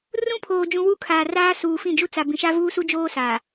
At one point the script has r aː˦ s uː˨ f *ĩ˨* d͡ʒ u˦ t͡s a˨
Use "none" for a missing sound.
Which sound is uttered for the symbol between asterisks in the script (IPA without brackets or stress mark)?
ĩ˦˨